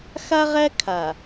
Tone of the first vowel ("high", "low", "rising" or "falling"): high